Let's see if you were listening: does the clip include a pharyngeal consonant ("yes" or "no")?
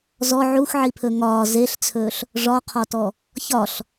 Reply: yes